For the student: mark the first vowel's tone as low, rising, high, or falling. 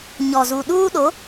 low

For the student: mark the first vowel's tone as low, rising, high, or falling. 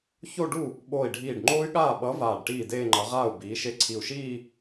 falling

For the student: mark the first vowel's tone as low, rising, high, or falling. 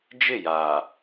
falling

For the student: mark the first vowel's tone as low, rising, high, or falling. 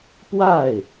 falling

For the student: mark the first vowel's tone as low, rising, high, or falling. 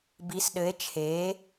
rising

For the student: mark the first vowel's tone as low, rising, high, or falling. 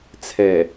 low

